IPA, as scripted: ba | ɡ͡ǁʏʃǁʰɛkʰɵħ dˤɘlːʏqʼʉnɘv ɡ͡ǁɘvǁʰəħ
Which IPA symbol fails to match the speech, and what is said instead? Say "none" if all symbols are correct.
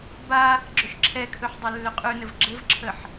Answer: none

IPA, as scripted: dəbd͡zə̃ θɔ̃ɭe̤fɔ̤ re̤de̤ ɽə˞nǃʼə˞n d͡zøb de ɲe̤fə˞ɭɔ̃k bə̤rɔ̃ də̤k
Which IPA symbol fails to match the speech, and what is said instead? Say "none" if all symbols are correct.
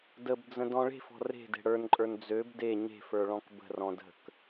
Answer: θ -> d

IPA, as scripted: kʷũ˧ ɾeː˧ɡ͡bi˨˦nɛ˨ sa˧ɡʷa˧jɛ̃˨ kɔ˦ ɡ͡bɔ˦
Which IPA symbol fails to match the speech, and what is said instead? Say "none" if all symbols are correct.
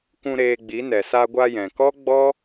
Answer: none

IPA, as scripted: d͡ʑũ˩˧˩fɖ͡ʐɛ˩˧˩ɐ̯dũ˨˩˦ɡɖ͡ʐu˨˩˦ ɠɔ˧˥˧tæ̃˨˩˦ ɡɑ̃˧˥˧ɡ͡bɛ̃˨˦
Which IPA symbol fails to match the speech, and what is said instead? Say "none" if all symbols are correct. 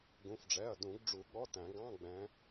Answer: d͡ʑ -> ɡ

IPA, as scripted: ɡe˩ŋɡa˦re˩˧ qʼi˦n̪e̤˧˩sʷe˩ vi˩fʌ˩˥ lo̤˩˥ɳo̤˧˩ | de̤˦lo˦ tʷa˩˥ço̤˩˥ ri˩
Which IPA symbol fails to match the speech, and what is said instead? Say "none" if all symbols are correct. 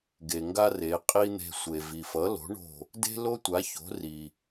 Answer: none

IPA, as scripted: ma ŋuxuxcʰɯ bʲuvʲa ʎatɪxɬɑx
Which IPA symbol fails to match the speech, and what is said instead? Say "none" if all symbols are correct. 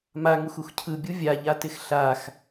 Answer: ɑ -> a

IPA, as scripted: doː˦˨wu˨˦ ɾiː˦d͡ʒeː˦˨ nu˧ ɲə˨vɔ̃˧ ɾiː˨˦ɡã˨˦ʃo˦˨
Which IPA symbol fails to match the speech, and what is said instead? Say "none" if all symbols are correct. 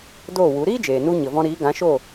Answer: eː˦˨ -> eː˨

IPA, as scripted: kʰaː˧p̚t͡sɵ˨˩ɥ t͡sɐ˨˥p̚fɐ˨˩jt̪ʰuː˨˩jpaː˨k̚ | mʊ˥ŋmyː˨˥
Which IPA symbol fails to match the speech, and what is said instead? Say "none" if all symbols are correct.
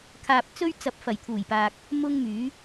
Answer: ɵ˨˩ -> ɵ˥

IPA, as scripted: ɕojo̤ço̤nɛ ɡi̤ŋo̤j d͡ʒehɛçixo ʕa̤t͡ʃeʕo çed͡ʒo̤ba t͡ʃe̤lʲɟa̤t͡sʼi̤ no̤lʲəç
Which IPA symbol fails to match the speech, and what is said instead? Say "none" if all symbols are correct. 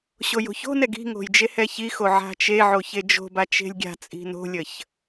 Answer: ɟ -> ɡʲ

